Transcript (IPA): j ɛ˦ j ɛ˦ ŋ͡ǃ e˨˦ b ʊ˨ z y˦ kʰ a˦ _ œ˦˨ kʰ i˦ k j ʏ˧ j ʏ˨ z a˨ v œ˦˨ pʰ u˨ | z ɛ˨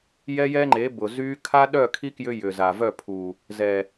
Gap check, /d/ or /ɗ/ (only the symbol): ɗ